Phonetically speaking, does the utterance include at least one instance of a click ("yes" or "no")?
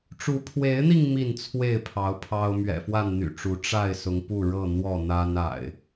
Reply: no